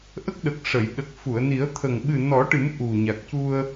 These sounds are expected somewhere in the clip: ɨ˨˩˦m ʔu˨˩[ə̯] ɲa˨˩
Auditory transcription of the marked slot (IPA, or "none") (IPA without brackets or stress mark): none